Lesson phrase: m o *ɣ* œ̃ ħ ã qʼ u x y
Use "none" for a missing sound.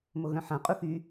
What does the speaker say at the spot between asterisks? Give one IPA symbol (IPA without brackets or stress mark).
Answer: ɣ